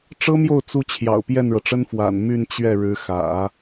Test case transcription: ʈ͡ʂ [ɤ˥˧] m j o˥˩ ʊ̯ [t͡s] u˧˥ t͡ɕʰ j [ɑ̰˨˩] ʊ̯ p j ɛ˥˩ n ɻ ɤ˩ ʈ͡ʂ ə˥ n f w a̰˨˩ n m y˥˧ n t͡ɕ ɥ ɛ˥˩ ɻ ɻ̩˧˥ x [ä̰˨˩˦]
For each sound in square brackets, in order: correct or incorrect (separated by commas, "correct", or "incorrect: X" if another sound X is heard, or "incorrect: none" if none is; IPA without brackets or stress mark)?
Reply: incorrect: ɤ˥, correct, correct, correct